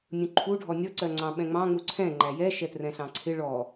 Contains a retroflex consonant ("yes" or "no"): yes